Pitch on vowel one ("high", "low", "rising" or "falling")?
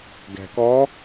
low